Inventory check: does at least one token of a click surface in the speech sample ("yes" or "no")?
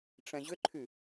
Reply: yes